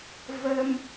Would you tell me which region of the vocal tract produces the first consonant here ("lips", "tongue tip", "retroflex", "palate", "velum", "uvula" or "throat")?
lips